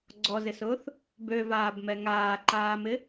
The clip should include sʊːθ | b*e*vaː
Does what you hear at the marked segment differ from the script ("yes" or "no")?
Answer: yes